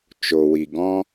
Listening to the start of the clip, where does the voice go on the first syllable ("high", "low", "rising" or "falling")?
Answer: low